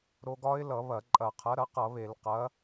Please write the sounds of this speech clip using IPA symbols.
ɾ o˧ ɡ ɒ˦˥ ɪ̯ l ʌ˧˩˧ β ɐ˧˩˧ ǃʼ ɐ˧˩˧ qʰ ɐ˨˥ ɾ ɐ˨˥ q ʌ˧˩˧ β e˧˩˧ l q ɐ˨˥

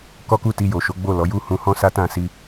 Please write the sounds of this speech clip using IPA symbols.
k ɔ˦ k u˦˨ t i˧ j o˨ ʃ o˨˦ ɡ͡b o˦˨ l ɔ˨˦ j u˦ h ũ˧ h ɔ̃˦ s a˦ t ã˦˨ s i˧

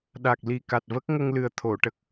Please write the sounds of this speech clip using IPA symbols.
ɗ a˨˩ k̚ l i˨˩ k a˨˩ t̚ v ə˦˥ k̚ ŋ ə˧ ŋ l ɨ˨˩ ə̯ t̪ʰ o˨˩˨ ʈ ə˨˩ k̚

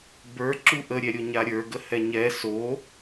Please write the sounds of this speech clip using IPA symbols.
b ə˞ ǁ u ʔ ə ɾʲ ɛ ɾʲ o ɲ a ɾʲ ə˞ ɡ ə h ɛ ɲ ɛ s o

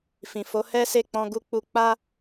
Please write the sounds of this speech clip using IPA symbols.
f ĩ˨ f o˨˦ h ɛ˦ s e˦˨ k͡p ɔ̃˧ ɡ u˧ k͡p u˧ k͡p a˦

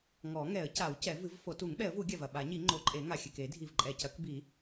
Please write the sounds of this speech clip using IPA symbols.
ŋ ɔ˨˩˦ ŋ ɛ˨˩˦ ə̯ c a˨˩˦ w c ɛ˨˩˦ v ɨ˨˩˦ v f o˨˩˦ t u˨˩˦ ŋ ɓ ɛ˨˩˦ ə̯ v u˨˩˦ ɡʲ a˨˩ v ɐ˨˩ ɓ a˨˩˦ ɲ i˨˩˦ ŋ͡ǃ o˨˩˦ ǃʼ e˨˩˦ ŋ a˨˩ xʲ ɘ˨˩ k e˨˩˦ dʱ i˨˩ v ǃʼ ɛ˨˩ c ɐ˨˩˦ k b i˨˩˦

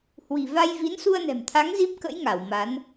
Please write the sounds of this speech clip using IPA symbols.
h w i̤˨˩ v a˧ j v i˨˦ n s u˧ ə̯ n ɛ̤˨˩ m t̪ʰ a˨˦ ŋ z i˦˥ p̚ k ə̰˧˥ j ŋ a˧˩ w m a˨˦ n

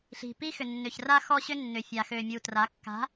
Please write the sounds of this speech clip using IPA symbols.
ɬ i̤˨ p i˦ x ʏ˨ nː ʏ˨ ç r a˦ x ɔ˦ ɕ ʏ˦ nː ʏ˨ fʲ a˨ x ø˨ mʲ u˨ t r a˨˦ kː a̤˨˦

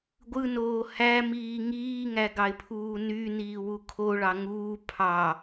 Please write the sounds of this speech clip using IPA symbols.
ɡʷ ɯ n oː h æ m iː ŋ iː ŋ æ ɡ ɑ ɪ̯ pʰ uː n y n iː w u kʰ o ɭ ɑ ŋ uː pʰ ɑ

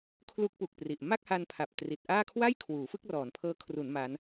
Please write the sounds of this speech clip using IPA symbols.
kʰ l u˦˥ k̚ p u˨˩ k̚ p r i˨˩ ʔ m a˥˩ k̚ h a˧ n pʰ a˨˩ p̚ t r i˨˩ t̚ ʔ aː˥˩ kʰ w a˥˩ j kʰ w uː˩˦ f ɯ˥˩ k̚ r ɔː˩˦ n pʰ ɤː˦˥ kʰ r u˩˦ n m a˦˥ n

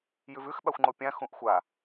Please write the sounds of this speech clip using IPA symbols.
j ʉ v ʉ x ɓ a xʷ ŋ͡ǃ o pʲ ã x ũ ʔ xʷ a

